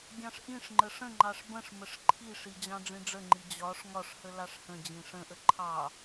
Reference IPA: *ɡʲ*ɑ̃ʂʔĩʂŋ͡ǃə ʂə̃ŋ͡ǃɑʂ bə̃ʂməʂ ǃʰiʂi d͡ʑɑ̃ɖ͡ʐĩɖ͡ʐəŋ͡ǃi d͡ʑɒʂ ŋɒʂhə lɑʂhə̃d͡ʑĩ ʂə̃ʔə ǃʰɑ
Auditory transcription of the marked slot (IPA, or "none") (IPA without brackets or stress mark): ɡʲ